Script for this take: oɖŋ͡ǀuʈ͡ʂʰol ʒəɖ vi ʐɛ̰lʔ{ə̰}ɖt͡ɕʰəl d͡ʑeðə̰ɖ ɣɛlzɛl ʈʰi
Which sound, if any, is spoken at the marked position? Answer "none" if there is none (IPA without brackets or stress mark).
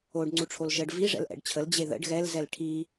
ɛ̰